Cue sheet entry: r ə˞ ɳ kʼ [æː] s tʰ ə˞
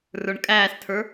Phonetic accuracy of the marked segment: correct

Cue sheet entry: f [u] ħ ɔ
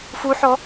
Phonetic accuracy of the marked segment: correct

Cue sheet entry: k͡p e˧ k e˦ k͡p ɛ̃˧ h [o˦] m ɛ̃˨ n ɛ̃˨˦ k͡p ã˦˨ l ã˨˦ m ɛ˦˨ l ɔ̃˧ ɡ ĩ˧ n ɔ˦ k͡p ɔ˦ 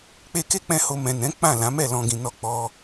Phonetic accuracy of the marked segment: incorrect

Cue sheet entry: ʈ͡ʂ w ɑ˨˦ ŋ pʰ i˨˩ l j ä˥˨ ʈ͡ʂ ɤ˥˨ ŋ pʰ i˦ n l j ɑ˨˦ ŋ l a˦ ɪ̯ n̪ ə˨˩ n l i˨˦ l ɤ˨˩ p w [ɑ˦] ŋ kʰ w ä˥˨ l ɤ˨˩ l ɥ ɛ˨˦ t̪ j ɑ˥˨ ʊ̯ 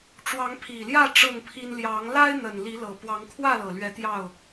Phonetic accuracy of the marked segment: incorrect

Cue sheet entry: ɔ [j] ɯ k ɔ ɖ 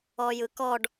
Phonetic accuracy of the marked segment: correct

